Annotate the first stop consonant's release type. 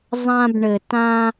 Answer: plain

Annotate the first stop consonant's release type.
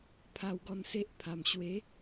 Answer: aspirated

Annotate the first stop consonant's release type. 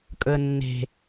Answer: ejective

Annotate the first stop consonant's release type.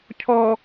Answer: aspirated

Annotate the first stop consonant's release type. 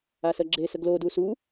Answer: click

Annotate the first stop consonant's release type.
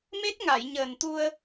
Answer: plain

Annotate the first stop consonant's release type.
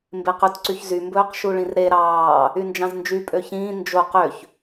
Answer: plain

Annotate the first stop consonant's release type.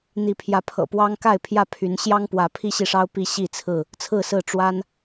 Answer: aspirated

